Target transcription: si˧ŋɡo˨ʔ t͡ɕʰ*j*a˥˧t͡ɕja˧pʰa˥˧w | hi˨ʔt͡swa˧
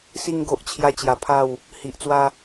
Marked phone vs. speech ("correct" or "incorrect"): correct